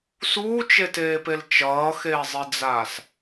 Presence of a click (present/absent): absent